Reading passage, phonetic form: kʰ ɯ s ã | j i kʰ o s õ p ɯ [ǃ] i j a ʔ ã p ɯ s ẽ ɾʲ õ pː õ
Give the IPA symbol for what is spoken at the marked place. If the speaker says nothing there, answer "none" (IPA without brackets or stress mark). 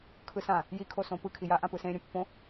kʰ